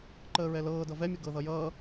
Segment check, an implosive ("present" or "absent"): absent